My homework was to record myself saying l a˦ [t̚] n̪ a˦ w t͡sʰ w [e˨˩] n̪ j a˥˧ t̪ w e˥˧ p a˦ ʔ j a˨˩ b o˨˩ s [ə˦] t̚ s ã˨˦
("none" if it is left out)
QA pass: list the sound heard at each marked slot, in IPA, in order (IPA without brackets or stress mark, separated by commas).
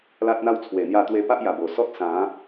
t̚, e˨˩, ɔ˦